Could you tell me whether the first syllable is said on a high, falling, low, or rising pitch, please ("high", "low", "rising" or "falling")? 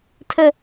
high